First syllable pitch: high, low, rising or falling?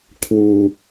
low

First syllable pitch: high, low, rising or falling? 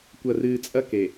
low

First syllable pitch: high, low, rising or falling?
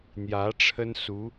rising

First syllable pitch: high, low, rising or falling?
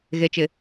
low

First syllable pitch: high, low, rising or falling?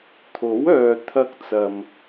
rising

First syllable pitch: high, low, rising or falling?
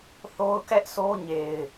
high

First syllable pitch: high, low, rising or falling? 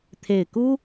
low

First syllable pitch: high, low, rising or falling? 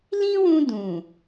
high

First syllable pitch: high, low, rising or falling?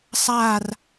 falling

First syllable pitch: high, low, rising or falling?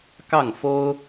falling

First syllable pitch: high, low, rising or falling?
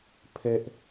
high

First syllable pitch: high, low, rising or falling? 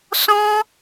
high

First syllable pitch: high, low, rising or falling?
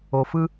low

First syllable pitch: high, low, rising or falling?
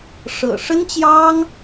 low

